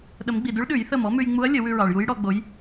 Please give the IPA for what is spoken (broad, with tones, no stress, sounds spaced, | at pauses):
ɗ ə˨˩˦ m ɡ͡b i˩ d ʉ˧˥ ɭ ɗ ʉ˨˩˦ j θ ə˧˩ m ɔ˧˥ m ʉ˧ j ŋ͡m u˧˥ ɐ̯ lʲ ə˨˩˦ w ʉ˧ ɹ ɑ˩ ɭ j u˧˥ j ɽ ɔ˧ ɡ͡b o˧˥ j